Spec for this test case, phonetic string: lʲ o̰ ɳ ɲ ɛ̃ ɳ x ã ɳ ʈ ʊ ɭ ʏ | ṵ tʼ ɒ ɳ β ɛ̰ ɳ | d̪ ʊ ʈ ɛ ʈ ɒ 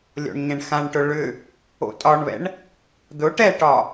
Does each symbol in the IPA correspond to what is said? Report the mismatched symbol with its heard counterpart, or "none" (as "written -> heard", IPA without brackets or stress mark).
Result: ṵ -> o̰